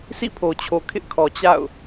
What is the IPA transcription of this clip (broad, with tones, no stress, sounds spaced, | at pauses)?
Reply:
sʰ ḭ˦˨ pʰ o˨ t͡ɕʰ o˨ kʰ ɪ˦ ʔ kʰ ɔ˨ t͡ɕ a̰˦˨ ʊ̯